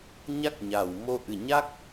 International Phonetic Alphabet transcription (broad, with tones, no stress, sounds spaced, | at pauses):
ɲ a˦˥ k̚ ɲ a˨˩ w m o˧ ʔ ɨ˨˩ ɲ a˦˥ k̚